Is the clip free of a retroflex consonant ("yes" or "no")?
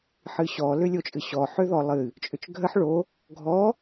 no